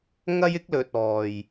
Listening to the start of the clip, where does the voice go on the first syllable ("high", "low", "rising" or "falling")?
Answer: high